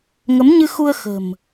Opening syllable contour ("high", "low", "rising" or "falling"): rising